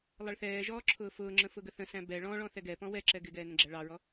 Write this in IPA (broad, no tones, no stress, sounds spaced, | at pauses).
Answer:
lˠ ʌ ɭ θ ɛː ʒ ɔː ǁʰ ʊː f ʊː ŋ͡ǁ ə̃ f ʊ ɡ ə θ ə̃ s æ̃ b ɛ ɭ ɔ̃ ɭ ɔ̃ θ ɛ ɡ ɛ p ɔ̃ w ɛ ǁ ɛ ɡ ɪ ɡ ɛː n ə̃ ɡ͡ǁ æ ɭ ɑ ɹ ɔ